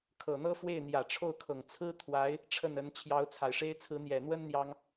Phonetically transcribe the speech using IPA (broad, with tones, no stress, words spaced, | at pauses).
kʰɤ˨˩n̪ɤ˥ fwe˥˩ɪ̯n̪jä˨˩ʈ͡ʂʰo˥˩ʊ̯kʰɤ˨˩ŋ t͡sʰɹ̩˥t̪ʰwa˧˥ɪ̯ | ʈ͡ʂʰə˥˩nə˧˥n t͡ɕʰjɑ˧˥ʊ̯t͡sʰa˨˩ɪ̯ʂe˥ɪ̯ t͡sʰɹ̩˧˥n̪jɛ˨˩n̪wə˥n n̪jɑ˥ŋ